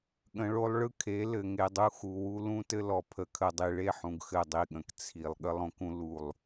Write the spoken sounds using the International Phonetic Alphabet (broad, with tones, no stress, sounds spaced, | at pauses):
ɠ ə̃˨ ɭ o˦ lˠ ɭ ɯ˦ kʰ e˨˦ l ɘ˨ ŋ e˨ dˤ u˦ x u˨ w u˦ l ũ˦ t ɘ˦ l ɔ˨ pʰ ə˨ kʰ ə˨ dˤ i˨ ɭ e˦˨ ħ ũ˨ ɡ x ɘ˦˨ dˤ i˦˨ ɠ ə̃˨ k t͡sʰ i˨ lˠ ɠ ə˦ lˠ õ˦ k ũ˦ l u˦˨ lˠ